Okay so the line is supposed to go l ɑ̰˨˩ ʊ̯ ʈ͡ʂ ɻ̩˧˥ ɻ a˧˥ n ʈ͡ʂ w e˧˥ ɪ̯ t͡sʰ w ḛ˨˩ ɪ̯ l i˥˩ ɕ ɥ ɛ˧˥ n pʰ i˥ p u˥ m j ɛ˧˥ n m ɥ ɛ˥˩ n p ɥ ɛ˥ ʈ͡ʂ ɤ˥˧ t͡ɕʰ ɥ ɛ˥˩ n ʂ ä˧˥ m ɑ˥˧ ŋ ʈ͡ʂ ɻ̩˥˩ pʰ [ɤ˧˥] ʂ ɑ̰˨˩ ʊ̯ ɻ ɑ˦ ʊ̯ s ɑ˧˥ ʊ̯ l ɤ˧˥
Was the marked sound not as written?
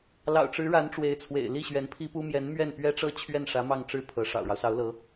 no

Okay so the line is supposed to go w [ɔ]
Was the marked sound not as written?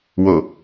yes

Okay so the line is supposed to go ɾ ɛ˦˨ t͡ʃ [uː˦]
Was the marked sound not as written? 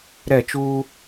no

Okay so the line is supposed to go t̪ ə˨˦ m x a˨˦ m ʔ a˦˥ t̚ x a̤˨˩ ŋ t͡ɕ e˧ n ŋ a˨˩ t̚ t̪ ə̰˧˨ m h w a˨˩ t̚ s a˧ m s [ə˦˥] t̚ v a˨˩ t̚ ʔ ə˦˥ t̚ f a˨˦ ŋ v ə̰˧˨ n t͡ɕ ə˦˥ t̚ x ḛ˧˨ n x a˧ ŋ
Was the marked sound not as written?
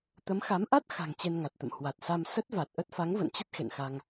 no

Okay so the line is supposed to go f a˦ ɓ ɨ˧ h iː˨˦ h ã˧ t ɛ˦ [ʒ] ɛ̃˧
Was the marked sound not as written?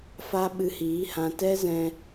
yes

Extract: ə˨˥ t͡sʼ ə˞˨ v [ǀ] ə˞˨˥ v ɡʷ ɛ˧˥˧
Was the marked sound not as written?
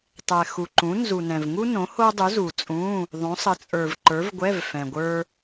yes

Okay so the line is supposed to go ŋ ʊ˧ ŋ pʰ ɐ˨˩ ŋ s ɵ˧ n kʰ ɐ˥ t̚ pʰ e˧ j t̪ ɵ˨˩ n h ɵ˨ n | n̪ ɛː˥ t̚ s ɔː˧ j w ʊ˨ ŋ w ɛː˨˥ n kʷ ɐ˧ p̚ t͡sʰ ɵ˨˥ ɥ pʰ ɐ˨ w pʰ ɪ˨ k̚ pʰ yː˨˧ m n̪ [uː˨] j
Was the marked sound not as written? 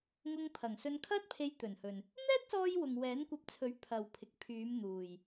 no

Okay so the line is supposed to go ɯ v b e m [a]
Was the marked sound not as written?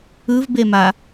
no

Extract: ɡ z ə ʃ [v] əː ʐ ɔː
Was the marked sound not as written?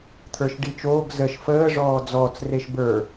yes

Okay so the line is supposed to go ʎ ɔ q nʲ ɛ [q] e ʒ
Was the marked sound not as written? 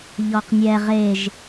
yes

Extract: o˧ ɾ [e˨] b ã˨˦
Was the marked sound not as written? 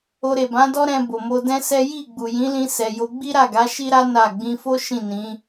no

